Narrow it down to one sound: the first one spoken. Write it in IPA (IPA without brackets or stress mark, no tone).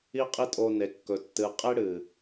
i